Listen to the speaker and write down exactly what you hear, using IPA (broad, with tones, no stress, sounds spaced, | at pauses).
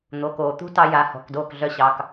n̪ o˩˧˩ k oː˩ t̪ ṳ˦ t ɑ˦ j a˨˦ h ɔ̤˩˧˩ k d oː˥˩ k ɮ œ˦ ɕ ɑ˩˧˩ k